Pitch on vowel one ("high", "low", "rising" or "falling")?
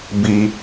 low